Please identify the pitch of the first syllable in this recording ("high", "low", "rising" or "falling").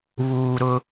low